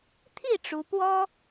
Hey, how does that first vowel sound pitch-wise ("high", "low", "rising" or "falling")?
falling